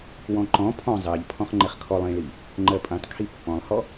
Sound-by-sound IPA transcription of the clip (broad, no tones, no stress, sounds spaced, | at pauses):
w ɔ̃ ǃ ɔ̃ pʰ ɔ̃ zˤ ɜ ʎ pʰ ɔ̃ χ ŋ͡ǃ ɛ χ kʰ ɔ lˠ ĩ ɭ i | ŋ͡ǃ ɜ pʼ ĩ tˤ kʰ i pː ɔ̃ lˠ h ɔ